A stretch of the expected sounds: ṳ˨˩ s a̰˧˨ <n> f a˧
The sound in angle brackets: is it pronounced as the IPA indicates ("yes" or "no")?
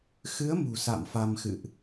no